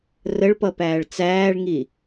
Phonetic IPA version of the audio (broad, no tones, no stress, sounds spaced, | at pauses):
r ə ɭ p ʌ p æː ɭ t͡s æː ɭ ŋ i